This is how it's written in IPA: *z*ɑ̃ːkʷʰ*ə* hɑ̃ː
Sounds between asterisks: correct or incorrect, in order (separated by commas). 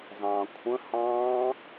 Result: correct, incorrect